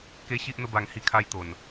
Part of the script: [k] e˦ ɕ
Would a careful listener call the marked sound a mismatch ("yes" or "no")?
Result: no